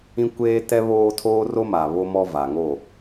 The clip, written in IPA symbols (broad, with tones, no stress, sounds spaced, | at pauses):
ĩ˦ kʷ eː˦ t ɛ˦ β oː˦ tʰ oː˦ r o˦ m a˨ β o˦ m ɔ˦ v a˨ ŋ o˦˨